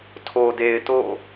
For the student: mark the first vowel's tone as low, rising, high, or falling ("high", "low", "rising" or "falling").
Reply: low